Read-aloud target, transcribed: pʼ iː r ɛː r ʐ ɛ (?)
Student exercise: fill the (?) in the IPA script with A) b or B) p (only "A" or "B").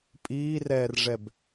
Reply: A